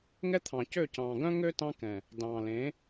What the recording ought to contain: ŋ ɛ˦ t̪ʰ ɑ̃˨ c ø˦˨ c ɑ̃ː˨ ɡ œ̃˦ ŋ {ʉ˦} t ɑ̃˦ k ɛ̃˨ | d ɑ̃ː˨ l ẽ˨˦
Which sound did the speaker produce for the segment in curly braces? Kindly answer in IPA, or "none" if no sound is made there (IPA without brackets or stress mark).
ø˦